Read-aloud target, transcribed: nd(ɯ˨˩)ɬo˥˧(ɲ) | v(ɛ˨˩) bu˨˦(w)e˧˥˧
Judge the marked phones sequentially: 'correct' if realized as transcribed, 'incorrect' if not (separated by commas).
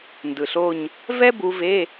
correct, correct, incorrect, incorrect